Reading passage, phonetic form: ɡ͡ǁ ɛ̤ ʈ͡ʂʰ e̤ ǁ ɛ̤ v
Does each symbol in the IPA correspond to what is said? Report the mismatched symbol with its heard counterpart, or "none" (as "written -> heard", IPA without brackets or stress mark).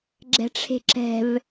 none